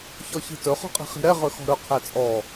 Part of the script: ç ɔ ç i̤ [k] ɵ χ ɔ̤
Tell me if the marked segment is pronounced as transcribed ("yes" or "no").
no